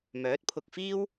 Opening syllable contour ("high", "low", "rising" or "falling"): rising